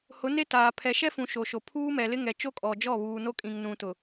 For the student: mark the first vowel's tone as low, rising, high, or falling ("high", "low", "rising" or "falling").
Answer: rising